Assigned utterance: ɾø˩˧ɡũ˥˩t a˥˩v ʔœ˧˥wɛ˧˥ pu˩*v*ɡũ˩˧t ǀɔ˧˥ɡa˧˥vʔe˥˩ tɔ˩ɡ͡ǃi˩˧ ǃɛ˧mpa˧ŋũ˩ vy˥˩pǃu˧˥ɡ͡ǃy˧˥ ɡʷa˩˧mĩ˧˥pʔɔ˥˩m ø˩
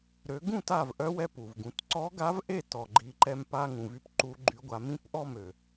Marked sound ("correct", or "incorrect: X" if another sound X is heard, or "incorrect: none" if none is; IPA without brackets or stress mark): correct